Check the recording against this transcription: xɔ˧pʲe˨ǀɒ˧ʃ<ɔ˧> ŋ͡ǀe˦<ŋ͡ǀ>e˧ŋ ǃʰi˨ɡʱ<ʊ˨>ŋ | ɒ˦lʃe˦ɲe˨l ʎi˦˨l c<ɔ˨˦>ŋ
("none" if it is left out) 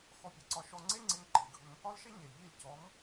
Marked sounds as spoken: ɔ˧, ŋ͡ǀ, ʊ˧, ɔ˨˦

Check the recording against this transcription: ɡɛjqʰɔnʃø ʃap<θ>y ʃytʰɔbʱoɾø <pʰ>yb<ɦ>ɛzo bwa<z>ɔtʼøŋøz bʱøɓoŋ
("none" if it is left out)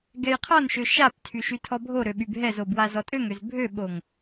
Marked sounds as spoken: tʰ, ɓ, ɦ, z

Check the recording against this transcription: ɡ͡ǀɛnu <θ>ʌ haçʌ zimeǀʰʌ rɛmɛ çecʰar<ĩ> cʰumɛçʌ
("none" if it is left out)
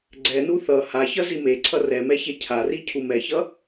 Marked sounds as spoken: θ, i

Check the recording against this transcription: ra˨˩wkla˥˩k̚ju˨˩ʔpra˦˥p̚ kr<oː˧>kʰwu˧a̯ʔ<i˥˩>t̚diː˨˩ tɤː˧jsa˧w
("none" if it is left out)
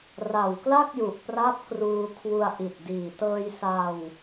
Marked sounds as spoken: uː˧, i˨˩

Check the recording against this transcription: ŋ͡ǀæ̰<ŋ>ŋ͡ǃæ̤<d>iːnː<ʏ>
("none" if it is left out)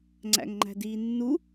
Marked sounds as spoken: ŋ, d, u

